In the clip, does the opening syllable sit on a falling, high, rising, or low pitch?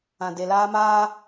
low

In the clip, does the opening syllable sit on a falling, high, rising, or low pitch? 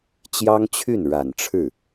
high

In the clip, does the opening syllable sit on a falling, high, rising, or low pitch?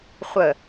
low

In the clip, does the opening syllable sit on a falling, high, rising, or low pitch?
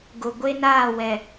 low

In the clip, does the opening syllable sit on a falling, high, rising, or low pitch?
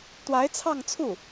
rising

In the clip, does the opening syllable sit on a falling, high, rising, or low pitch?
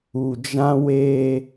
low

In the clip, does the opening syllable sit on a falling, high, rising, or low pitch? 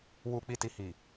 low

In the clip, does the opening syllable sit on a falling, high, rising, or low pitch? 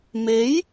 rising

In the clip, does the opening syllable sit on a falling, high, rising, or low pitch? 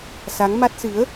rising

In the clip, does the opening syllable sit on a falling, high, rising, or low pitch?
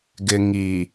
low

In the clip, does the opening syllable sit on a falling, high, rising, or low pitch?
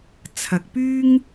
low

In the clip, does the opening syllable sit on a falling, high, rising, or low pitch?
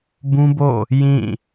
high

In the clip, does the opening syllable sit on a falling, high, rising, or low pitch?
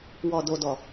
low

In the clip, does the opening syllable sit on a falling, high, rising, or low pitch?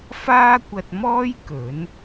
high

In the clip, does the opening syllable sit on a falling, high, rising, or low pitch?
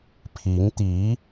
rising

